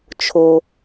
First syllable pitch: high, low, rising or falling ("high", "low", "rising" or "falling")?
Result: low